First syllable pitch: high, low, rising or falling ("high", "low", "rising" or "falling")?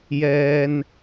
low